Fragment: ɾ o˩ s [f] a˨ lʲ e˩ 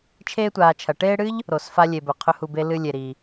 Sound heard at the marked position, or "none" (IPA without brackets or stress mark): f